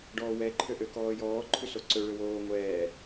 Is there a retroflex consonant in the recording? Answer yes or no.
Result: yes